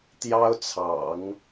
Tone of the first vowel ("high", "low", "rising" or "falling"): high